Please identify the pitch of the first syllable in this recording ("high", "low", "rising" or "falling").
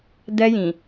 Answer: high